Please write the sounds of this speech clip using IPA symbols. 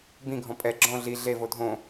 b ĩ ɡʱ ɔ̃ pʼ ɛ ɡ͡ǁ ɔ̃ ɮ i ɮ e v o dʱ õ

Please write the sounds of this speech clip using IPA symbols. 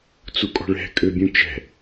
t͡s u kʼ ɔ̤ ɭ ɛ̤ kʼ ø bʲ ũ t͡ʃ ɛ̤

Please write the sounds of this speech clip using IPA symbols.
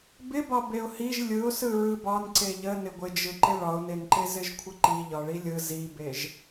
b ɪ b ɒ b e ʊ̯ h i ʒ lʲ ɯ ʊ̯ s ɯ ɹ ɯ b ɒ n ǀ e ʎ ə n ɪ ɡʷ ɪ d͡ʒ ɯ ǃ ɪ ɭ ɒ ʊ̯ n e n ǃ e z ɪ ʒ kʷʰ ɪ ǃ i ʎ ɒ ɭ i lʲ ɯ z i b e ʒ

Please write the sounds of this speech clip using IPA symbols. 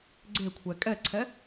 ɡ͡ǀ e kʷʰ ɛ kʼ ɛ ǀʰ ɛ

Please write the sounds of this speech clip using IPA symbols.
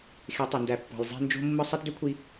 x e˨˦ tˤ o˨ n d æ˨ pː ɑ̤˨ j zˤ æ̤˦ n d͡ʒ o̤˦ mː ɯ˦ sˤ æ˦ t d ø˦ kʷʰ i˦

